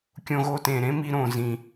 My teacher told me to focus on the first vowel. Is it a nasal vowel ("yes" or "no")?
yes